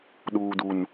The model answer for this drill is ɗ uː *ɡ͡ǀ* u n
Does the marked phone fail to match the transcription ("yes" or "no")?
yes